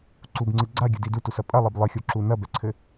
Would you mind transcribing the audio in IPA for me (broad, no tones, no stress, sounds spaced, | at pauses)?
ǀ u b ŋ͡ǀ ɨ ɡ͡ǀ a ɡʲ ɨ d i d u t u s ɐ pʼ ɐ lˠ e b lˠ ɨ xʲ o ǁ u n ɐ b ɛ ǀʰ ɘ